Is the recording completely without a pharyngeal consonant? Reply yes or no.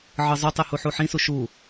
no